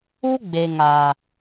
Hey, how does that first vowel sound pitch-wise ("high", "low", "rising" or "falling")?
high